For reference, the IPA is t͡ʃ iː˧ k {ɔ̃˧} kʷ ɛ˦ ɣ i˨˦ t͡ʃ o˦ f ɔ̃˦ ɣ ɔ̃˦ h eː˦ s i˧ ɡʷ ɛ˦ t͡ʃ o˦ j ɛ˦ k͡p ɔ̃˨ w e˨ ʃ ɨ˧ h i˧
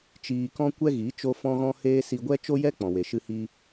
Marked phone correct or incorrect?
incorrect